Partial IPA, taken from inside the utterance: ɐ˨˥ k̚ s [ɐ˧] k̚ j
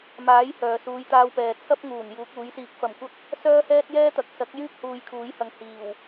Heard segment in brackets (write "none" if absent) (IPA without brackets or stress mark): ɐ˨˥